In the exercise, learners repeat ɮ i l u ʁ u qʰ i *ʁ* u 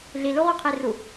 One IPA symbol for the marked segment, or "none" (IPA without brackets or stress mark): r